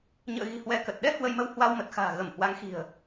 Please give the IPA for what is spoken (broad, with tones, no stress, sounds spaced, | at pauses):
ɲ ə̰ː˧˨ ɣ i̤˨˩ h w ɛ˧ k ə˨˩ t̚ ɗ ɛ˧ h w ə˧ j m ə˧ w h w a˧ w m ə˨˩ t̚ x a̤ː˨˩ ɣ ə˧˩ m h w a˨˦ ŋ x i̤˨˩ ə̯